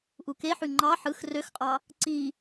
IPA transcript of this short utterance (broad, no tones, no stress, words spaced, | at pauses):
ʔukeħy ŋ͡ǃɑ ħɯx røxqʼɑ | ǀi